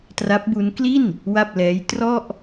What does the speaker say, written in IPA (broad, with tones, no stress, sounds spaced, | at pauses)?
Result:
t r a˦˥ p̚ b u˦˥ n k l i˥˩ n | w a˥˩ p̚ l ɛː˦˥ j t r ɔ˥˩ ʔ